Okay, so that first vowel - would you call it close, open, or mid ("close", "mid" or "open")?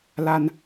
open